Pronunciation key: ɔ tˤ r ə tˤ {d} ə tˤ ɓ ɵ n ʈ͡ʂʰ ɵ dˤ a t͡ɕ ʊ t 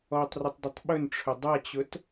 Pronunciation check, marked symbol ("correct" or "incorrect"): correct